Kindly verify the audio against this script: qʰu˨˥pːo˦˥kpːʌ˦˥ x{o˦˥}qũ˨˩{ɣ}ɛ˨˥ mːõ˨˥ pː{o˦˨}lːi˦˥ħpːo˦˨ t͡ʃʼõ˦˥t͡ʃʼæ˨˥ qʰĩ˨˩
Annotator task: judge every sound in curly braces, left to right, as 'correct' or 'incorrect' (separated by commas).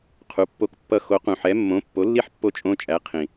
incorrect, incorrect, incorrect